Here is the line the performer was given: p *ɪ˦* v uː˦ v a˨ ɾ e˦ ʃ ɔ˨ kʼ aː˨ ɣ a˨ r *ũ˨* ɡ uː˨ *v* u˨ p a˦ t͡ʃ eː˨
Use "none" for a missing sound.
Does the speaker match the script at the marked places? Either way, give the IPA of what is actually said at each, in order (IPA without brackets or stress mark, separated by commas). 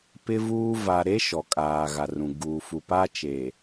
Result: ɪ˦, ũ˨, f